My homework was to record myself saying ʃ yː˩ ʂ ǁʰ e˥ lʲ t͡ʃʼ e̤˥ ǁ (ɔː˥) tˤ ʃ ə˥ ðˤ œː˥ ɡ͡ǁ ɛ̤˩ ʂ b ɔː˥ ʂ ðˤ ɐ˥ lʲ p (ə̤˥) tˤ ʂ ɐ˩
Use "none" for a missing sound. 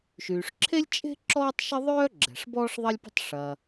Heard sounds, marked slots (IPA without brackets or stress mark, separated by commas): ɔː˥, ə̤˥